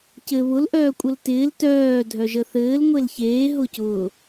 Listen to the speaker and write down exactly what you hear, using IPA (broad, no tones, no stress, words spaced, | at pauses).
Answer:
cɘ βʊlʔœː kʷʼəltɪːl tœː dʱœʒəθɘːl ŋʷelçeː ɦʊcʊː